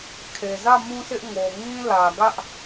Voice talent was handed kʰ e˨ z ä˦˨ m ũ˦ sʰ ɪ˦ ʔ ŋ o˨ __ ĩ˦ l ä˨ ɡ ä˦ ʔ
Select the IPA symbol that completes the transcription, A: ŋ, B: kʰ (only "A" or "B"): A